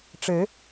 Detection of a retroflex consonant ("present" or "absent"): present